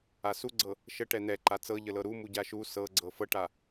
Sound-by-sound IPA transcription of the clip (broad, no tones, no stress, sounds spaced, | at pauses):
a s u ɡ͡ǀ ɤ | ʃ ə ʈ ɛ n̪ ɛ ǃ a t͡s ɤ ʎ ə l ɤ ɾ u m u ɟ a ʃ u s ɤ ɡ͡ǀ ɤ f ɤ ʈ a